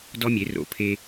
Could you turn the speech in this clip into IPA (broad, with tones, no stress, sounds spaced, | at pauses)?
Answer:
d ɔ˦ mʲ e˨˦ r o̰˨˦ pʰ e˦